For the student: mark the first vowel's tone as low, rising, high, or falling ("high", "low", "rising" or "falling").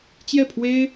falling